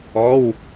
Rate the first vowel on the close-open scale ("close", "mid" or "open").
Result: mid